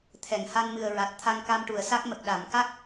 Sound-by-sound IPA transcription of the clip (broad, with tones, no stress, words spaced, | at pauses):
t̪ʰɛ˨˩˨ŋ ha˧nmɨ˨˩ə̯ ɹa˨˩t̚ t̪ʰa˧ŋka˧mʈu˨˩˨ə̯sa˦˥k̚ mə˨˩k̚ɗa˨˩˨m ka˦˥k̚